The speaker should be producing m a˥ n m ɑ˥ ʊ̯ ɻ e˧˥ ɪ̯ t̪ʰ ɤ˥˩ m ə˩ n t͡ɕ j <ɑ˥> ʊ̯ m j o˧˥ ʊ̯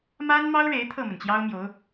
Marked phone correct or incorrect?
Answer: correct